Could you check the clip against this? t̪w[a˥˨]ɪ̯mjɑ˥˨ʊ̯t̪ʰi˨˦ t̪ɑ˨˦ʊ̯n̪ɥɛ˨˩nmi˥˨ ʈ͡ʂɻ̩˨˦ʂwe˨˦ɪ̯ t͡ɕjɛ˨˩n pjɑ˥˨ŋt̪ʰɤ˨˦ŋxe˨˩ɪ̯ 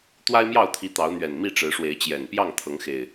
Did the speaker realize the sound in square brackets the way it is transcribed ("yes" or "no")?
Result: no